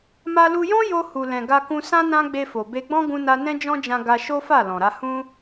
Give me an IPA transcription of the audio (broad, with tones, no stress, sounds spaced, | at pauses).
m a˧ l u˧ j ɔ̃˦ j o˧ h u˨ l ɛ̃˨ ɡ a˧ k ũ˧ s ã˦ n ã˦ ɡ͡b e˧ f o˨ b e˧ ɡ͡b ɔ̃˦ ɡ ũ˦ n a˦ n ɛ̃˦ d͡ʒ ɔ̃˦ d͡ʒ ã˧ ɡ a˧ ʃ o˦ f a˦˨ l ɔ̃˨ ɾ a˧ h ũ˦